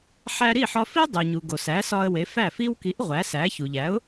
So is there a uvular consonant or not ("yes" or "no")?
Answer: yes